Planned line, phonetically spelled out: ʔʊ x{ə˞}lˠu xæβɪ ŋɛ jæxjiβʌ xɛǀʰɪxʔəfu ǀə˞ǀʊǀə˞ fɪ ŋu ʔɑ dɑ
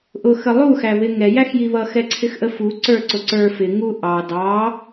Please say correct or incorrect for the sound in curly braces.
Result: incorrect